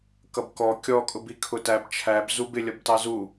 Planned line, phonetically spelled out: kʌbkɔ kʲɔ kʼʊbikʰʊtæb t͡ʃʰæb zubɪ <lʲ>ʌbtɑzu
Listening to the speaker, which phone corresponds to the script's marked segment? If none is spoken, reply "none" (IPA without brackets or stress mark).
lʲ